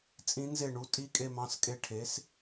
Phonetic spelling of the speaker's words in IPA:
t͡sʼ ĩ˧˥ n z e˥˩ ɳ u˧˥ tʼ i˧ kʼ e˧ m ɑ̃˩˧˩ s kʼ e˧ ʈʰ e˩˥ s

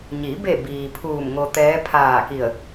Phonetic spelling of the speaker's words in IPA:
ɲ i˩˧ b e˧˩ b iː˩ pʰ uː˧˩ m ŋ o˧ t̪ ɛː˧˥ pʰ aː˧˩ k i˧˩ ə̯

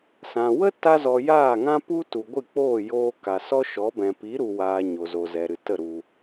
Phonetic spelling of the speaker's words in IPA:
s ã˨ w ə˦ t a˧ z ɔ˨ j aː˦˨ ŋ ã˦ p u˦ t u˨ ɡʷ ɨ˦˨ k͡p oː˦˨ j oː˧ k a˨ s ɔ˦ ʃ ɔ˨˦ b ɛ̃˨ p i˨˦ ɾ u˨ w aː˨ ɲ o˨ z o˨ z ɛ˨ ɾ ɨ˨ t ə˦˨ ɾ u˧

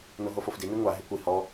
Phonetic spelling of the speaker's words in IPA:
n o ɦ o f o f d i n i ŋʷ a ɦ e kʷ i h ɔ

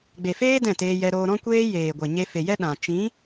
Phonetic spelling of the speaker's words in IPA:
ɡ͡b e˨ f eː˦ d ɛ̃˦˨ t eː˧ j ɛ˧ ɾ oː˧ ɾ ɔ̃˦ kʷ eː˦ j eː˨ ɡʷ e˨ ɲ e˧ f e˨ j ɛ˦ ɗ ã˨ t͡ʃ ĩ˨˦

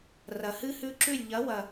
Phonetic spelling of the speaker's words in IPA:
r ɐ˨ h ɨ˦ h ʉ˦ ǁ ʉ˦˨ lʲ ʎ ɐ˨˦ w ɐ˨

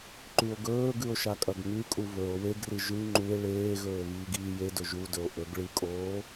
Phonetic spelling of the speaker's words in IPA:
ǃ ʉ o̯ ɡ ɵː ɡ ʉ o̯ ʃ a kʼ ɐ ɡ ŋ ʉ kʼ u β ɵ o̯ w e ɡ r ɨ ʒ ʉ ŋ͡ǃ u e̯ ɭ eː ɣ ɵː β iː ɡ iː j e d ɵ ʒ u d ɵ o̯ ʔ ɵ ɡ ɭ ɨ kʼ oː

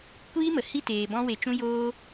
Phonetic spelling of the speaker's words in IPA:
kʷ iː˦ m ə˨ h i˦˨ t eː˨ b ɔ̃˧ w e˨ t͡ʃ ũ˧ j oː˧

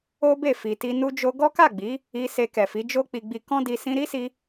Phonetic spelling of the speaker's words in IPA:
o˦ b e˦˨ f i˨ t i˧ n u˧ d͡ʒ o˧ ɡ ɔ˦ k a˦˨ ɡ͡b i˨˦ | i˧ s e˧ k ɛ˨ f i˨˦ d͡ʒ o˦ k͡p i˧ ɡ͡b i˧ k ɔ̃˦ d i˧ s ĩ˧ ɾ i˦ s i˧

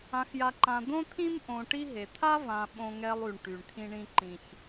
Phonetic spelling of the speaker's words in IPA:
ã˨ x j a˨ ǃ ã˨ d̪ õ˦ t̪ʰ ĩ˦ m ʔ õ˨ ʈ i˦ ɦ e˨ t̪ʰ a˦ v ã˨ ɓ õ˦ ŋ ɛ˦ lˠ y˨ ɳ ʈ y˨ ɳ t̪ʰ ĩ˦ ɳ ĩ˦ ǃ ĩ˨ ç

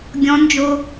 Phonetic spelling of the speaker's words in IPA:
ɡʲ ɔ̃ n d͡ʒ o

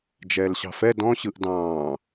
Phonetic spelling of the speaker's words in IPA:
d͡ʒ ɛː l ɕ ɑ̤ f ɛ d ɔ̃ ɕ ɯ ʔ d ɑ̃ː

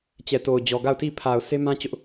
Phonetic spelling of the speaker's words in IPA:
t͡ɕ ɛ˨ t o˨ ʊ̯ d͡ʑ ɔ˨ ɡ a˦˨ ʊ̯ t i˦˨ pʰ a˨ ʊ̯ sʰ e˦ m ã˦ t͡ɕ ʊ˦ ʔ

